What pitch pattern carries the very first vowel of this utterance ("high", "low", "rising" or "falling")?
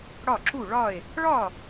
falling